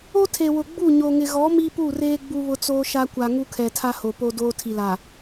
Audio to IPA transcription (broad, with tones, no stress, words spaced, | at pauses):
o˦tʰe˨wʊ˨ ɡ͡bu˦˨ ɲo˨ŋɪ˨ɣɔ˨˦ mi˦pu˦˨reː˦ ɡ͡bu˦βʊ˦t͡soː˦ʃa˦ kʷa˨ ŋu˦kʰɛ˨tʰa˦ho˨ po˦doː˦ tʰi˨laː˨